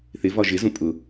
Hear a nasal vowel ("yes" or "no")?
yes